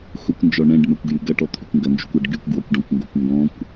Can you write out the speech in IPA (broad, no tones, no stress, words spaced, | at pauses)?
xʊkʷnd͡ʒɔ ɳɛ̃ɖmɛkʷɡjy ɡɐʈɔt̪ʰykʷ ŋɡɐnd͡ʒykʷɐɖ ɡykʷɡwɔkʷɖɔ̃kʷŋɡokʷ ŋɡɔ̃kʷ